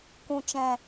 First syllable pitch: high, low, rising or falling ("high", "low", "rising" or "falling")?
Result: low